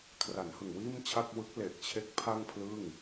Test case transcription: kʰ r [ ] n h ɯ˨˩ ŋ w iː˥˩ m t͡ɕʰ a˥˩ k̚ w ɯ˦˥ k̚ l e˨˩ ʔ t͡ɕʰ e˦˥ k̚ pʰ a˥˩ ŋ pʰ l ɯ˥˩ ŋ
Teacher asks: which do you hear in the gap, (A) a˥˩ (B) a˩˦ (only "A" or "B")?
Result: B